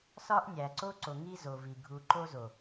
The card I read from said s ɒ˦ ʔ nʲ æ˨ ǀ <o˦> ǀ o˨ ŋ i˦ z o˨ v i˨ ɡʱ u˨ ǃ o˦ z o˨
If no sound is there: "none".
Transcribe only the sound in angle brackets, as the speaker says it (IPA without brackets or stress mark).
o˦